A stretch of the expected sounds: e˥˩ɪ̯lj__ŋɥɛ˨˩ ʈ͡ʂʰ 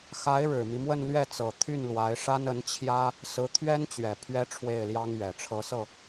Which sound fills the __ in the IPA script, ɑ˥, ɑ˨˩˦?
ɑ˥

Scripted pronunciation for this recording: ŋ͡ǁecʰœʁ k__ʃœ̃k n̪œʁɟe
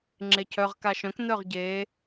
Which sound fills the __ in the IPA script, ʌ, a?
a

